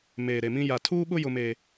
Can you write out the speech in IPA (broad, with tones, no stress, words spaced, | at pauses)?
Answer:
meː˨ɾe˨mĩ˦ ja˨tʰuː˦ɓʊ˦ jʊ˦meː˦